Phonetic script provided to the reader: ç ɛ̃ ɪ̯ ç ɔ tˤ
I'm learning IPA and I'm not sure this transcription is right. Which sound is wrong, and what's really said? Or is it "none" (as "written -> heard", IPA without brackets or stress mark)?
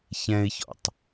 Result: ɔ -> ɔ̰